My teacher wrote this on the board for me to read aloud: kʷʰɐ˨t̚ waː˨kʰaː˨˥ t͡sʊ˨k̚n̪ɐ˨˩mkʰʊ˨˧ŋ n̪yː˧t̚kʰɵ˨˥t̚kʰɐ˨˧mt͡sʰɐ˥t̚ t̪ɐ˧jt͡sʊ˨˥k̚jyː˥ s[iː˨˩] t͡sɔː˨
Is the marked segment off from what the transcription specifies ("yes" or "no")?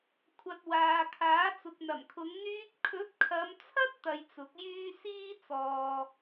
yes